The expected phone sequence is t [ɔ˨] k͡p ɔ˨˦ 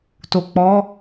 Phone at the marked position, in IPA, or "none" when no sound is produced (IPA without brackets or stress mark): o˨